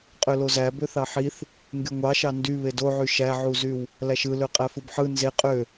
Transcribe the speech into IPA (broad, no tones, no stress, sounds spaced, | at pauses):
qʼ ø l o z æ b ø θ ɑ ħ i θ | ŋ ɡ y ŋʷ ɑ ʃ ɑ n d y β e d o ʕ y ʃ æ ʕ u z y w | l æ ʃ ɯ l ø qʼ æ f ɯ b ħ ɯ n z e qʼ ø